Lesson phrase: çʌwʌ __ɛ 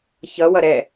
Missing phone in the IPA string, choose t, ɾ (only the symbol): ɾ